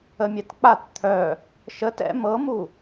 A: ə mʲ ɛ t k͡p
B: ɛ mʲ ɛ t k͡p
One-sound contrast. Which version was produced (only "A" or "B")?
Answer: A